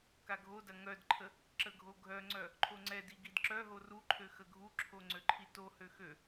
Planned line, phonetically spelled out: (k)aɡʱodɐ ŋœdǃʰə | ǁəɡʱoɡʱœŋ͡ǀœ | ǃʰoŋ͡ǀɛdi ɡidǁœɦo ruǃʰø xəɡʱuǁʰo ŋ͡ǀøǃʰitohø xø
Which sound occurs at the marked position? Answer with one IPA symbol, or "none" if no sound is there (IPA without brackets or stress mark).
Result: k